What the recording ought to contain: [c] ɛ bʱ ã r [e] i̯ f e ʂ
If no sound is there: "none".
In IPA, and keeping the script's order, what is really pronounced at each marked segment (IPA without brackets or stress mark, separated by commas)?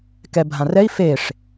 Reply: k, ɛ